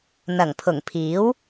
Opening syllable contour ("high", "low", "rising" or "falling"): low